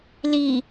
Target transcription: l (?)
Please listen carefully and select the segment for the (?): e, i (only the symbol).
i